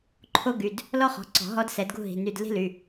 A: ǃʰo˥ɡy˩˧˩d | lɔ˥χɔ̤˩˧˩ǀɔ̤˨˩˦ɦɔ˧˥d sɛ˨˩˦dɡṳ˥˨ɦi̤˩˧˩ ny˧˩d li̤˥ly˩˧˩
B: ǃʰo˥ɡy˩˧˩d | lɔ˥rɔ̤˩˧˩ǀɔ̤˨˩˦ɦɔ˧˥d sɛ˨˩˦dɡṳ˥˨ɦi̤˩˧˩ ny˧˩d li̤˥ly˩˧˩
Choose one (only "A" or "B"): A